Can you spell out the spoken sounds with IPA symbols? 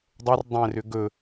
dˤɤr dˤɛ̃rʏ ɡɵ

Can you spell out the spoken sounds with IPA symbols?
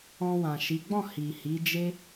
ɔ̃˧wã˨ʃi˨˦ ɡ͡bɔ̃˦˨ hi˨hi˨˦d͡ʒe˦

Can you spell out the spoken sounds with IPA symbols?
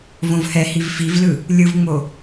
võvhɛhiv fivlɯ | lʲɯvŋ͡mo

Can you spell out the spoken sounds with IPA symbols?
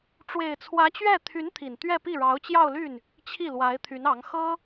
ʈ͡ʂwe˨˩ɪ̯t͡sʰwä˧˥t͡ɕɥɛ˥˩ t̪ʰy˧˥n t̪ʰi˨˩nt̪ɥɛ˥˧pi˥˩ɻɑ˧˥ʊ̯ t͡ɕjɑ˥˧ʊ̯ly˥˩n | t͡ɕʰi˥˩lwa˧˥ɪ̯t̪ʰy˧˥nɑ˧˥ŋ xɤ˥

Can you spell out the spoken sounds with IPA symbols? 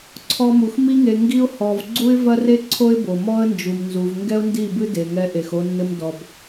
ǀʰɔ˦mu˧x mi˦ŋe˧ ŋɡi˦ʊ̯ hɔ˧v ɡ͡ǀu˦ɪ̯vɐ˦re˦ ǀʰo˦ɪ̯bo˨mɔ˦ə̯nd͡ʒu˨m nzu˨vŋɡɛ˦ʊ̯ndi˦˨ bɨ˦de˨ŋɛ˧ ʔe˨xo˧nːɘ˧m dɔ˨b

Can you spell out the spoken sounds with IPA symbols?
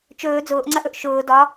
t͡ʃɵː d͡zʊːʔŋ͡ǀɐʔɵʔ ʃʊː dɒ

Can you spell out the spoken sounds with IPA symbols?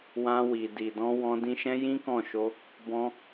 wã˧wi˨di˨dɔ̃˧ wɔ̃˧ dĩ˧ʃɛ̃˦ jĩ˦kɔ̃˦˨ʃo˧ | bɔ̃˧

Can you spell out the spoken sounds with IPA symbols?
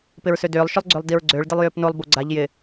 pɪɹsødʏːlˠ ʃʏlˠɡ͡ǀølˠdiɹɡ͡ǀøɭ dɪlˠjʏːpnolˠ boɡ͡ǀaʎ jɪ

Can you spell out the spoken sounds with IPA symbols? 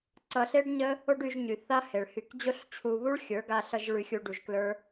ǀʌ˧ɬe˦ɖɲə˦ | o˦ɖy˧ʒɲy˨ θa˦he˨ɭ hy˧k d͡ʑo˦ɬt͡ɕʰu˧βu˦ɭ xʲə˞˨˦ɡa˧ɬʌ˧ʒ ɭy˧xʲu˧ ɖu˧ʒklə˞˦

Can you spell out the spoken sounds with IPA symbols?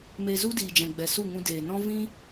me˧zu˦diː˨d͡ʒɛ̃˨ ɡ͡bɛ˨su˦˨ŋũ˧ deː˨nɔ̃˦ vĩ˦

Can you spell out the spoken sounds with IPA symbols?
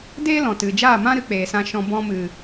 deː˦lɔ̃˨ tɨ˨d͡ʒaː˦˨mã˦ ɾɨ˧k͡peː˨sã˧ʃɔ̃˧ bɔ̃˧mɨ˨

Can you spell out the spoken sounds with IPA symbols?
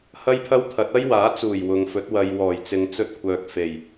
hɐ˥jpʰɐ˥wt̪ʰɐ˨˥t̚ ɐ˥jwaː˨˥t͡suː˨˩j wʊ˨ŋfɵ˨˥t̚ wɐ˨j wɔː˨˩j t͡sɪ˨˧ŋt͡sɵ˧t̚kʷʰœː˨k̚ fe˨˩j

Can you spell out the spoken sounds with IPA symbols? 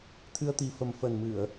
t̪ʰɨ˧ə̯t̪i˨˩fə˨˩m fə˨˩nmɨ˧˩˨ə̯

